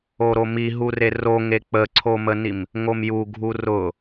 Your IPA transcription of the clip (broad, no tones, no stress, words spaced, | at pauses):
oɾomi ɦureroŋe k͡pəǀʰomənim | ŋomjuɡʱu rʊ